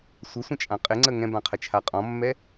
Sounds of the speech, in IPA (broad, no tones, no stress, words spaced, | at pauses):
sʷəsʷə̃t͡ʃʼã qʼɪŋ͡ǀə ŋɛ̃bãqʰət͡ʃʰa qʼɔ̃mːɛ